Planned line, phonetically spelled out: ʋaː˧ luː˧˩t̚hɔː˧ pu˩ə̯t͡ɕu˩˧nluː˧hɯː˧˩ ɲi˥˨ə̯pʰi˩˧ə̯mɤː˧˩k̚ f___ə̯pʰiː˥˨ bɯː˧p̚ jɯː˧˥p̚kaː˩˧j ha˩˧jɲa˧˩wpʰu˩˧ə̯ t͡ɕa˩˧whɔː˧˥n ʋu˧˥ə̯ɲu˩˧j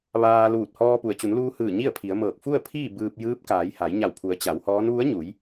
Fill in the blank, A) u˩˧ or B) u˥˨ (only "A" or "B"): B